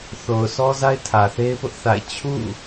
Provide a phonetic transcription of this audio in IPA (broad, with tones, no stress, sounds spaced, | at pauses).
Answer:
θ o˨ ʊ̯ s ɔ˦ z a˦ ɪ̯ tʰ ä˨ θ e˦ ɪ̯ p ʊ˦ ʔ θ a̰˦˨ ɪ̯ t͡ɕʰ ṵ˦˨